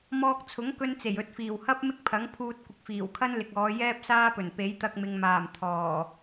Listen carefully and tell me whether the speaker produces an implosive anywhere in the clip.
no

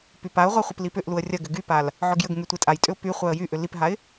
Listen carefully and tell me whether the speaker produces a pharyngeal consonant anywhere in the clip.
yes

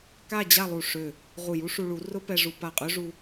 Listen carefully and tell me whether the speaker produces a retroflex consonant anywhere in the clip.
yes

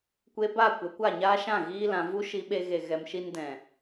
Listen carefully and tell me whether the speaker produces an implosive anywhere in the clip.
yes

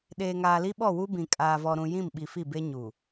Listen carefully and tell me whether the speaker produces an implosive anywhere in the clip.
yes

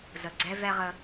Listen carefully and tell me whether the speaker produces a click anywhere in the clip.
yes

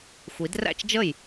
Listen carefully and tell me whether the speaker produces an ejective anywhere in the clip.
no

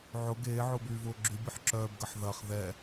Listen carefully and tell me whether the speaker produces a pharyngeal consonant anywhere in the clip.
yes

